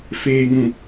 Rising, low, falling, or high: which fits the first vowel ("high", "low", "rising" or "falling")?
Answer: low